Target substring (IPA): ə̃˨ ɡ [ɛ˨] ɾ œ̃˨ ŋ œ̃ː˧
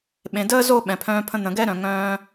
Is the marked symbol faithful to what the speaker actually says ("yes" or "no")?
no